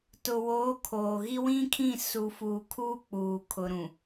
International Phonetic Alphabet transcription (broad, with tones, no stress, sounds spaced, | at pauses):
t ʊ˨ w oː˨˦ kʰ oː˨ ɣ i˦ w ĩ˦ kʰ ĩ˦˨ s u˨ f uː˨ kʰ uː˦ k͡p uː˨ kʰ ʊ˨ ɾ ũ˨